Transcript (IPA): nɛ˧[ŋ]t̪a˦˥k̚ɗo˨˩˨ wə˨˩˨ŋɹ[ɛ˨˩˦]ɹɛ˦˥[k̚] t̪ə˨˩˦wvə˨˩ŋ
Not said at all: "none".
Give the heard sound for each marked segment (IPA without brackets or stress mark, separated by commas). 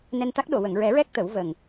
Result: n, ɛ˨˩˦, k̚